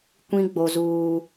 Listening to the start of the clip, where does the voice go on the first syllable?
high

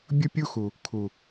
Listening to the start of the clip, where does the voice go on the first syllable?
high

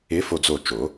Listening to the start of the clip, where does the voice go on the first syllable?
rising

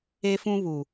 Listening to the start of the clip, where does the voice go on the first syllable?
high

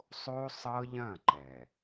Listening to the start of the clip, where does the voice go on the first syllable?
high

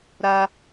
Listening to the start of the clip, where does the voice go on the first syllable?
high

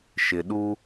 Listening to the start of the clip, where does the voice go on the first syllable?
low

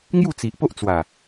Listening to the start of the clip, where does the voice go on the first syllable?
falling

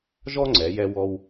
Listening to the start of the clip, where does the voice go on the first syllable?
high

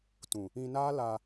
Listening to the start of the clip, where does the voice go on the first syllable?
low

